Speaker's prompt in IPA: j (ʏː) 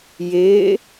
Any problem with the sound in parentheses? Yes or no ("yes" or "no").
yes